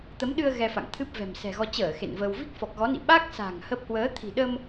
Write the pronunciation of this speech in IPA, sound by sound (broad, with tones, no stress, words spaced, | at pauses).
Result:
t̪ə˨˦mɗɨ˧ə̯ ɣɛ˧fa̰˧˨ŋ t̪ʰɨ˦˥p̚vɛ̤˨˩msɛ̤˨˩ɣɔ˧ t͡ɕəː˧˩ xḛ˧˨nvəː˧w vi˦˥k̚fɔ˨˩k̚ɣɔ˨˦ nḭ˧˨ɓa˦˥k̚sa̤˨˩ŋ hə˦˥p̚ hwəː˨˦ t̪ʰi̤˨˩ɗə˧m